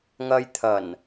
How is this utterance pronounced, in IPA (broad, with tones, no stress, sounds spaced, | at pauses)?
ŋ ɐ˧ j t̪ʰ ɐ˨˩ n